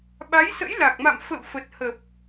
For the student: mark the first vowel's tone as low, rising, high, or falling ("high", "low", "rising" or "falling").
rising